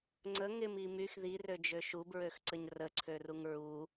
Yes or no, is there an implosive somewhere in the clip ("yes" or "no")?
no